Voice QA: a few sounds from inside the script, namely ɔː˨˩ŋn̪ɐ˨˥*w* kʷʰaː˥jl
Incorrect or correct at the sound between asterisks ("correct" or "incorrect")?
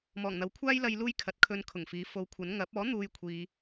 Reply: correct